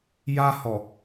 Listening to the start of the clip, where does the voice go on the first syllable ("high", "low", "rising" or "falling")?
high